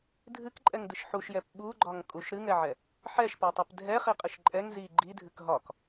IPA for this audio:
dʱɨkǃʼɛŋdɨʃ ħuʃjɛp ɓuɡ͡ǃɒŋkʼuʃ ɾɨŋɛʕɛ | ħɛʃpɒtˤɛp dʱɛχiqʼɨʃ ǃʼɛŋ zi ɡ͡ǃidʱɨk ɦɒk

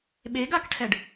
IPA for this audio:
ɓeɡakʈʰɛɖ

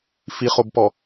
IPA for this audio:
fiχobpɔ

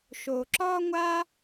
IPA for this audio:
ʃo˧ǁɒ˥ŋʷa˥

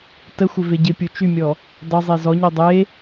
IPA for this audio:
təxʷɪve ɟɪpʲu t͡ʃymʲɔ | dˤɪzˤe zɔɲo dˤe

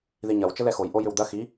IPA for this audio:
ðiɲɐw t͡ʃəlɛxoj ʔojʏwd̪ɐ xi

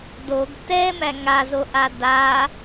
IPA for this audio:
doɡ tɛmæ ŋazoʔa da

